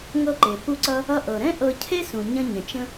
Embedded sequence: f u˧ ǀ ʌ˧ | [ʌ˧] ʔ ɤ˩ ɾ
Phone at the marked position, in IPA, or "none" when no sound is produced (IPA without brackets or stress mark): ʌ˧